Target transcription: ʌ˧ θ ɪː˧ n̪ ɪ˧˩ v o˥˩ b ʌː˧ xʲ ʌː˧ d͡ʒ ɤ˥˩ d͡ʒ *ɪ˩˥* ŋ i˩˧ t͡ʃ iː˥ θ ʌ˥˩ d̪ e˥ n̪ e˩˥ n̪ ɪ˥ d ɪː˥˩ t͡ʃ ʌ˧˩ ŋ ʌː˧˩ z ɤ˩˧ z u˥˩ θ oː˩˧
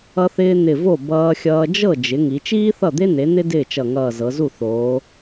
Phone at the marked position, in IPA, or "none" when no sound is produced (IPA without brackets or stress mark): ɪ˩˥